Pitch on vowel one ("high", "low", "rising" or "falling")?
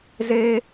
high